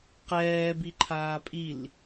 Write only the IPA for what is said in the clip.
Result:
qɛː biǃʰaːpʼil

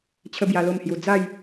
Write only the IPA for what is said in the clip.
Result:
t͡ɕʰə˦bja˧lo˥˧mhju˧ d͡za˥˧j

